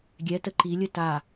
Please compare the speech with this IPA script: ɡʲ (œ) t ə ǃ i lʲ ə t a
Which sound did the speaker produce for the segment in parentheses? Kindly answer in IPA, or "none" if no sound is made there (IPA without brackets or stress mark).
ɛ